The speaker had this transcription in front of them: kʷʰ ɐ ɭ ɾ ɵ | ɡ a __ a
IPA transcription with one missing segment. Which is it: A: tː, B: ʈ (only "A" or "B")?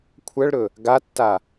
A